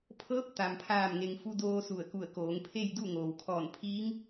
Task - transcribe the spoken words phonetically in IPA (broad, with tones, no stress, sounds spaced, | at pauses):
pʰ ɤː˧˥ p̚ t̪ a˧ m pʰ aː˥˨ m ŋ e˧ ŋ f u˧ d oː˧ s u˧˩ ə̯ k u˧˩ ə̯ k oː˩˧ ŋ pʰ e˥˨ j d u˥˨ ŋ oː˩ w kʰ ɔː˧˩ n pʰ iː˧˥ ŋ